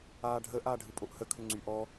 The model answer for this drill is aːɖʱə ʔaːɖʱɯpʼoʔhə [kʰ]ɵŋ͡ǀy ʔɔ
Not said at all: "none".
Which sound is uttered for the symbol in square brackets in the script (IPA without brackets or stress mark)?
kʰ